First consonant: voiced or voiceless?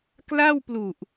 voiceless